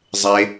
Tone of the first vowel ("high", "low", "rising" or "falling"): low